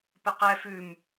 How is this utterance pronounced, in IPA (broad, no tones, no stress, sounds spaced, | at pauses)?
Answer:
p ɘ q ɛ f ʉ m